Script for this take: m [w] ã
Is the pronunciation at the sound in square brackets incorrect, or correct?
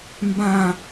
incorrect